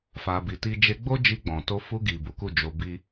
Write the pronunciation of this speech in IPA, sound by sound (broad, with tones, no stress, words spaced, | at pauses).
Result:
fa˧bi˧ti˦ d͡ʒe˧ɡ͡bo˦ d͡ʒi˧ɡ͡bɔ̃˨to˧ fu˧ɡi˨ bu˨˦ku˦˨d͡ʒo˧ bi˦